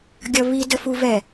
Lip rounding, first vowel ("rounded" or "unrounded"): unrounded